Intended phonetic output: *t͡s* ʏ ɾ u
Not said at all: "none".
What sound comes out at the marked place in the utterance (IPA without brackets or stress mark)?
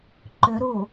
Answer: ǃ